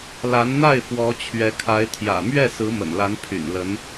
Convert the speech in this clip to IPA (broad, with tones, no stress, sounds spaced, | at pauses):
l a˧˥ n n̪ a˥˩ ɪ̯ f w ɔ˧˥ t͡ɕʰ ɥ ɛ˧˥ kʰ a˧˥ ɪ̯ t̪ʰ j ä̰˨˩ m ɥ ɛ˥˩ s ɹ̩˧˥ m ə̰˨˩ n l a˧˥ n pʰ y̰˨˩ n l ə˧˥ n